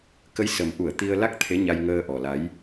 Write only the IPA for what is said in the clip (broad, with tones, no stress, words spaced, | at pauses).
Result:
kə˨˦jsə˨˩mʔu˧˩ə̯ t̪i˧ə̯la˦˥k̚t̪ʰe˨˦ ɲa˧jŋəː˧ʔɔ˨˩la˨˦j